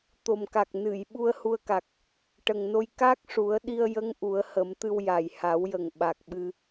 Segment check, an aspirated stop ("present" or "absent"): absent